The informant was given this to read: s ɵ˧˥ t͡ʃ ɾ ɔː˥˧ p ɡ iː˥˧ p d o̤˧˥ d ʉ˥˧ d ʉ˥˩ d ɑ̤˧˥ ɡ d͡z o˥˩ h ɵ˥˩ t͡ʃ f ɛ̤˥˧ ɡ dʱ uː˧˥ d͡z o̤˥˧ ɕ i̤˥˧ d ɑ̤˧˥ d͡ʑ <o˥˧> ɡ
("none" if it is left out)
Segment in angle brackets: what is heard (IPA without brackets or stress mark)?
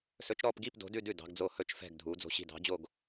o˥˧